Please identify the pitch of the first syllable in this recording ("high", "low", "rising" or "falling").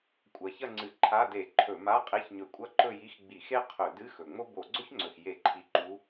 rising